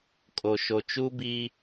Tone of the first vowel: low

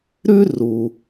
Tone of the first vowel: high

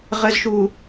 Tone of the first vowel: low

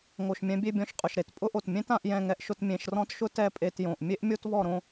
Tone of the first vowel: low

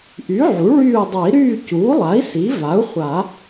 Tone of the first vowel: rising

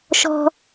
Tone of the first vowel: high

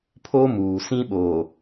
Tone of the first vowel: high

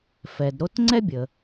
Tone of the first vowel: low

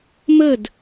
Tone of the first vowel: falling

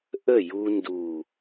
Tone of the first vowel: falling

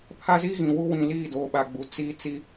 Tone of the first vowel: high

